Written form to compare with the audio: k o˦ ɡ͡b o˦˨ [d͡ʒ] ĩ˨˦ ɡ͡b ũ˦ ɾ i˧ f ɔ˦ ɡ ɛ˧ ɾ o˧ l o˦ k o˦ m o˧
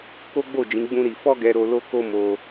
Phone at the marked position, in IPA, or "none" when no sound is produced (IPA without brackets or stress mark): d͡ʒ